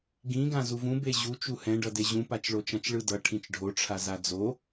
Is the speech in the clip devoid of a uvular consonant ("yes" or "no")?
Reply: yes